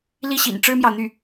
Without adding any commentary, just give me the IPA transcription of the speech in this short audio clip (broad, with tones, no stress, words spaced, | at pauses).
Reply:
li˥˩ɕḭ˨˩n ʈ͡ʂɻ̩˥mjɑ˨ʊ̯n̪y˥˩